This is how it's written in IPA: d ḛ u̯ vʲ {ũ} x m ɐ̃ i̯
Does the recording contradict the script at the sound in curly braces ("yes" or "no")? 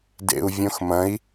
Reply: yes